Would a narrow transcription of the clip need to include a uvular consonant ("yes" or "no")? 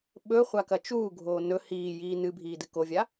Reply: yes